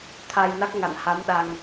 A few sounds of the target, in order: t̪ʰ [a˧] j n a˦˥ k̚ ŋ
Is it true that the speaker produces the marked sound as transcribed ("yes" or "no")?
yes